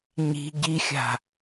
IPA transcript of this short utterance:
ɲ i̤ ɟ i xʲ a̤

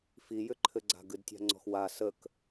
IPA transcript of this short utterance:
f i j ʏ ǃʰ ɘ ɡ͡ǀ a̤ ɡ ɨ d tʲ a̤ ŋ͡ǀ ɔ̤ x w a s ə k

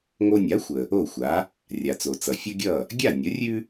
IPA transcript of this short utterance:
ŋ o˧ nʲ a˩˥ xʷ ə˩ | o˥˩ xʷ a˩˥ | rʲ a˩ t͡s o˩ t͡s ʌ˩ fʲ ʌ˥ ɡʲ ʌ˥˩ | ɡʲ a˥˩ nʲ ə˩˥ rʲ ʉ˥

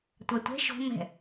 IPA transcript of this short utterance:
tʷ a tʷ ɛ̤ ʃ o̤ m ɛ̤

